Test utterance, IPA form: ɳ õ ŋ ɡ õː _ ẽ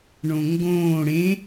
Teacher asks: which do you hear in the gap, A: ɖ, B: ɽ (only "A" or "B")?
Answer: B